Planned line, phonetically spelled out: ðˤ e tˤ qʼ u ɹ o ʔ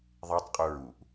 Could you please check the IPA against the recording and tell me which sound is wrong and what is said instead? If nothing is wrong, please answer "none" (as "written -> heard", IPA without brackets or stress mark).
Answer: o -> u